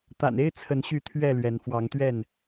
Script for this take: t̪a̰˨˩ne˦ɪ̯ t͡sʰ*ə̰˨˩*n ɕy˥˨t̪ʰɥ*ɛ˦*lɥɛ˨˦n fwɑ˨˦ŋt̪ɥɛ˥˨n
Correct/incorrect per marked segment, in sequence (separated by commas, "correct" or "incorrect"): incorrect, incorrect